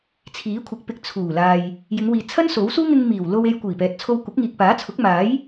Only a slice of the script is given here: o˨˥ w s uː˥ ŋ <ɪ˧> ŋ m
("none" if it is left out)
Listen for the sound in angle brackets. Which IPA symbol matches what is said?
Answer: ɪ˧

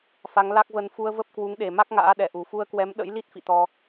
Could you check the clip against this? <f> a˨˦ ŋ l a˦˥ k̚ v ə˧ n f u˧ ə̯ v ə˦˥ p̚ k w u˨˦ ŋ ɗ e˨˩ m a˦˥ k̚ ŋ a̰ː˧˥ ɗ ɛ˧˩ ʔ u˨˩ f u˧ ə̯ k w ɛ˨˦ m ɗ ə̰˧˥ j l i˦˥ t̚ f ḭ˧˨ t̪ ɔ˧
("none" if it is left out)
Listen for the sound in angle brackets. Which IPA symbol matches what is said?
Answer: f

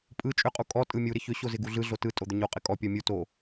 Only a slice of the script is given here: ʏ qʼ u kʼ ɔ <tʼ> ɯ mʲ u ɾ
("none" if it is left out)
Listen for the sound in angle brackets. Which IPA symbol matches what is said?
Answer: tʼ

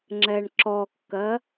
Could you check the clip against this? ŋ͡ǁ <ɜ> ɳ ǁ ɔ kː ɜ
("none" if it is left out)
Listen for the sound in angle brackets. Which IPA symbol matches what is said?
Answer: ɛ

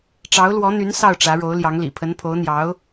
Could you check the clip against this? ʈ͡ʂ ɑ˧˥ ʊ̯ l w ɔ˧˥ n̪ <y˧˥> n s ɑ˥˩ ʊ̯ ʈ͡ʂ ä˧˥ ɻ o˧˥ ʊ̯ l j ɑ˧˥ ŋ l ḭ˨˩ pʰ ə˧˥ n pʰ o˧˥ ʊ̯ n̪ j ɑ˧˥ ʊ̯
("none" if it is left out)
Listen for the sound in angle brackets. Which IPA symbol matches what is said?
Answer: y˧˥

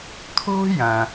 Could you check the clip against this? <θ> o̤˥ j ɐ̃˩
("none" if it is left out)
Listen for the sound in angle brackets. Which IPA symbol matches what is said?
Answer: t̪ʰ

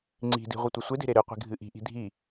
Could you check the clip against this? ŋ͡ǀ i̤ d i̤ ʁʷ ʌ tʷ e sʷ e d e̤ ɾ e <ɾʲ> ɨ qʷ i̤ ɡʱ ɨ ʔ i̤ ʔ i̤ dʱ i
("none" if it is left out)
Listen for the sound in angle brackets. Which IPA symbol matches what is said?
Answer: ɾ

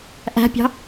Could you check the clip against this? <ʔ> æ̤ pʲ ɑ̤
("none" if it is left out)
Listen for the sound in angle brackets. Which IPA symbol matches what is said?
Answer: ʔ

